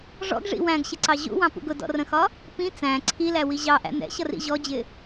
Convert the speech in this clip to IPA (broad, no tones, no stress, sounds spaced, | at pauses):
ʐ ɔ̰ ɡ ʐ ḭ w æ̃ ɡ ɕ ɪ ǀ ɑ ʑ ṵ w ɑ̃ p ṵ ɡ ʊ d ɔ̰ r ə̃ x ɒ | p ĩ t͡s æ̃ ǀʰ i l æ w i ʑ ɑ ʔ æ̰ n̪ ɛ̰ ɕ ʌ r ḭ ʑ ɔ d͡ʑ ɪ